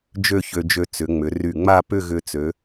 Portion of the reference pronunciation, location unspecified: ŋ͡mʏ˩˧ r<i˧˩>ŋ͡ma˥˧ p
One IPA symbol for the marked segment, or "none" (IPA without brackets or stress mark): y˧˩